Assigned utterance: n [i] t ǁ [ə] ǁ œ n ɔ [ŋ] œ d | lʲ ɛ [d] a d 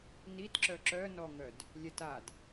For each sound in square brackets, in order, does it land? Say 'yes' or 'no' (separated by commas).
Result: yes, no, yes, no